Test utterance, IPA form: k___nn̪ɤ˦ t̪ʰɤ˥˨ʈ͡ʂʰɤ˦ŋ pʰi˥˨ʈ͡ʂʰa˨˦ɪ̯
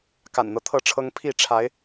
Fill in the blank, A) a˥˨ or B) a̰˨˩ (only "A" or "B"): B